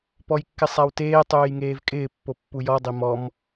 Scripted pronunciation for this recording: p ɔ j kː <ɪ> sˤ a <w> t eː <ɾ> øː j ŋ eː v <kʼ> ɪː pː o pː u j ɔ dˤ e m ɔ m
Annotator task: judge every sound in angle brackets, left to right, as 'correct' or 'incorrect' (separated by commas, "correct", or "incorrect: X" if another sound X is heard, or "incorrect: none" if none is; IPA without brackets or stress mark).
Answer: correct, correct, incorrect: tˤ, correct